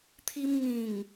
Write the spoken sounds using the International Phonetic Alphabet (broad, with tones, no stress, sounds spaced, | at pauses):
t̪ʰ i˧ m ŋ ĩ˨˩ ŋ